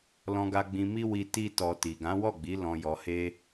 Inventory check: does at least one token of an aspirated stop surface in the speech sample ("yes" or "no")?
no